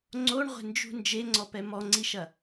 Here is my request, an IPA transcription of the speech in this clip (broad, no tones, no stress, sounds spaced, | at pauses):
ŋ͡ǀ o ɳ ʁʷ e̤ n d͡ʒ ṳ n d͡ʒ e ŋ͡ǀ ɔ p ɛ m ɔ ŋ͡ǀ i ʃ ɐ